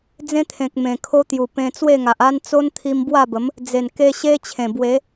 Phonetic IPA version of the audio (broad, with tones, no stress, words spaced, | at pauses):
d͡zẽ˦t̪ʰẽ˨k̚ mẽ˨˩kʰo˦t̪ju˨˩pẽ˧ t͡swe˥˧ŋa˨ʔa˦n t͡so˦nt̪ʰi˧m bwa˥˧bə˨˦m | d͡ze˨˩nke˧ ɕe˦t͡ɕʰẽ˨˩ bwe˨˦